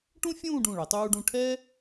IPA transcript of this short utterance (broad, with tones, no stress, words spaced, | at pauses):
ʈũ˥ fʲũː˥˧ɖũ˧˩ɭʌ˩˧ tˤuː˧ɖũ˧ ʈʰɛ˥